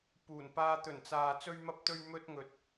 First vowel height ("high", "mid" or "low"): high